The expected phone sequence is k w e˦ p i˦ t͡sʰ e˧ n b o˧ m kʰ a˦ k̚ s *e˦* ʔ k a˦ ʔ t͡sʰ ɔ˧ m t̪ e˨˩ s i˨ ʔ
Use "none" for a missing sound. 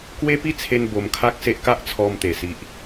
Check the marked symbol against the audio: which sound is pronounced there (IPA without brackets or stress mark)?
e˦